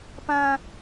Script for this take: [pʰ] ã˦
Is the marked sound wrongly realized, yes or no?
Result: yes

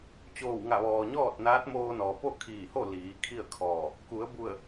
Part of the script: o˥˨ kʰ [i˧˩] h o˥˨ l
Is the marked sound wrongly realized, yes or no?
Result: yes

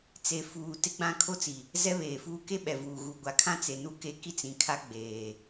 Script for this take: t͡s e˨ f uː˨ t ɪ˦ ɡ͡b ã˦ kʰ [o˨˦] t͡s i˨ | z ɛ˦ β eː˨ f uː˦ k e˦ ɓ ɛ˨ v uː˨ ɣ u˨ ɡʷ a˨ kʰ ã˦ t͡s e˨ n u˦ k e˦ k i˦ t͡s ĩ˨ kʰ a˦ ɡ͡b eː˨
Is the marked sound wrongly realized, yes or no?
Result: yes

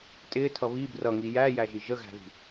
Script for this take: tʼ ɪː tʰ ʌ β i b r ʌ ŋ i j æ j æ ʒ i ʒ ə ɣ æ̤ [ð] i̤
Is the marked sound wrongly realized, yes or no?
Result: no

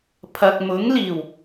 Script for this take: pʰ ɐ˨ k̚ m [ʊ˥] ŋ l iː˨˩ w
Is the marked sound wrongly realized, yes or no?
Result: yes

